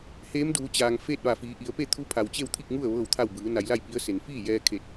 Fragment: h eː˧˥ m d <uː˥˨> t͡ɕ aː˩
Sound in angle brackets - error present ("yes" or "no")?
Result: yes